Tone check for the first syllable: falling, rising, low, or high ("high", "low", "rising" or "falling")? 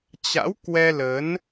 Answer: rising